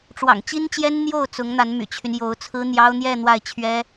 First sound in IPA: ʈ͡ʂ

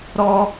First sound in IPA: ɾ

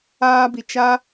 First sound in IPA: aː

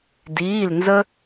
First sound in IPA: d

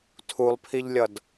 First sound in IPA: tʰ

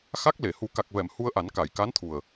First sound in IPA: x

